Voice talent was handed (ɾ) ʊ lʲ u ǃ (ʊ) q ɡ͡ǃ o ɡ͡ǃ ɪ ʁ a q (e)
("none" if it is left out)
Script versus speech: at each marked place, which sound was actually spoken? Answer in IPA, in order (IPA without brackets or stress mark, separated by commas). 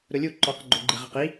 ɾ, ɔ, i